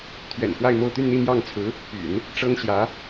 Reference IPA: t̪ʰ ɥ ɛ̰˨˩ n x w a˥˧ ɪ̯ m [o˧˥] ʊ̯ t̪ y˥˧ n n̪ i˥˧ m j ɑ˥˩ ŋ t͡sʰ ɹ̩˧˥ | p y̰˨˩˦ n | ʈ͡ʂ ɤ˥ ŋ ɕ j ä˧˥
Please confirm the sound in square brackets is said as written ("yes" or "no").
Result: no